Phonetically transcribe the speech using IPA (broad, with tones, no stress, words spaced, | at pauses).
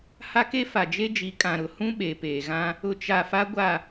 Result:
ha˦ke˦ fa˨d͡ʒe˦d͡ʒi˨˦ kʼã˨ɾʊ˨ hũ˦ ɓeː˨peː˨ɣã˦ | ʊ˨t͡ʃa˨ fa˦ɡʷa˦˨